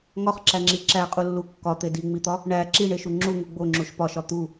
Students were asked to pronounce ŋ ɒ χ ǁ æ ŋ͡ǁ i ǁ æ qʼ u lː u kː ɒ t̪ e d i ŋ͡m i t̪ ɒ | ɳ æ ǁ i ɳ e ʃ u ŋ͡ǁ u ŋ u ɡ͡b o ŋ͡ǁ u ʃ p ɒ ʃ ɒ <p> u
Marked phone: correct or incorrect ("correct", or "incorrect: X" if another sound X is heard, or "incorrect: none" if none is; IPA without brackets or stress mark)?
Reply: incorrect: t̪